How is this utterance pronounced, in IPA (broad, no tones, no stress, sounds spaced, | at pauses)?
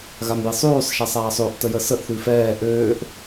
ɣ a m j i sˤ ʉː sˤ ʃ a sˤ aː sˤ ø ʔ t ə j ə s ə ʔ θ ʉ f ɛː ʔ øː ʔ